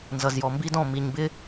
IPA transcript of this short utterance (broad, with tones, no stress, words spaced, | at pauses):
nzʌ˨zjɔ˨mbi˦dɔ̃˦˨ mi˨ɲbɪ˦